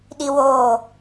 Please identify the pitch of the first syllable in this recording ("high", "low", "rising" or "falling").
high